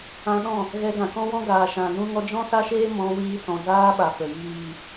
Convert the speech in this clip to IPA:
ã˧ ɗ ɔ̃˦˨ | ɣ ɛ˧ ɡ ã˨ k ɔ̃˦ w ɔ̃˦ ɡ aː˨ ʃ ã˨ n ũ˧ ŋ ɔ˧ d͡ʒ ɔ̃˦ s a˦ ʃ eː˦ m ɔ̃˧ w iː˧ s ɔ̃˨ z aː˧ ɓ a˨ f ə˨ j iː˨

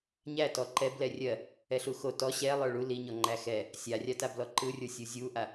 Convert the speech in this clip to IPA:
ɲ æ t ɔ ǃ ɛ b l ɛ rʲ ɜ | ɛ ɬ u x o t ɔ ɕ ɛ lˠ ə˞ ɭ u l i ɲ ɔ ŋ͡ǃ æ x ɛ | sʲ a rʲ a t a b l ɔ ǃ ɯ rʲ ə˞ sʲ u zʲ u ʔ a

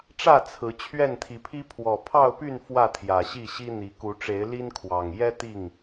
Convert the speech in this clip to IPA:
ʈ͡ʂ ä˥˨ t͡sʰ ɹ̩˨˦ t͡ɕʰ ɥ ɛ˥˨ n t̪ʰ i˨˦ pʰ i˦ pʰ w ɔ˨˩ pʰ ɑ˥˨ ʊ̯ p y˥˨ n f w ä˥˨ t̪ʰ j ä˨˩ ɕ i˥˨ ɕ i˦ n̪ i˨˦ k u˨˦ ʈ͡ʂ e˨˦ ɪ̯ l i˦ n kʰ w ɑ˨˩ ŋ j ɛ˦ t̪ i˥˨ ŋ

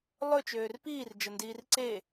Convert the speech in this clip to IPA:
lˠ ɵ t͡ʃ øː r p iː r d͡ʒ ə n d iː r ǀ e

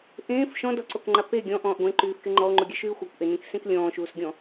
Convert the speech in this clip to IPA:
ʔ ẽː f ʃ ɔ̃ d ɔ ǀ o k ŋ͡ǃ a p e ɡʲ ɔ̃ ʔ ɔ̃ː ʔ ɡʷ ẽ ǃ yː f k e ŋ͡ǃ ɔ o̯ ŋ͡ǃ u ɡʲ ɛ ʃ yː xʷ a kʷ ʔ e n ẽ k s ẽ k lʲ ɔ̃ː ʃ uː s ɡʲ ɔ̃

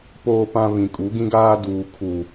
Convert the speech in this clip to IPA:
p oː˨ p ã˨ β ĩ˨ kʼ u˨˦ ɡ ĩ˦ ɡ aː˦ d uː˨ kʰ u˨

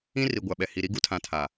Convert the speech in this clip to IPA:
ĩ˦ r i˨ ɡʷ a˨ ɓ ɛ˨ h i˨ ɾ i˦ ɡ u˦ tʰ ã˨ tʰ aː˨

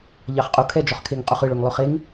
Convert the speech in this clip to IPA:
ʎ ɑ χ qʼ u kʰ ɛ d͡ʒ ɔ χ kʰ e ŋ qʼ u χ ɯ ɭ ø ŋ lˠ ø χ e ŋ

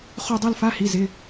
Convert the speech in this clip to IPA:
χ o˥˧ dˤ ɜ˥˧ l f a˧˥˧ h i˩˧˩ z ɪ˩˧˩

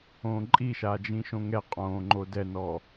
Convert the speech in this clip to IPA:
õː ǃʼ i ʃ aː d͡ʒ ĩ ʃ õ ŋ ɛ qʼ õː ŋ͡ǃ o d ɛ n ɔ

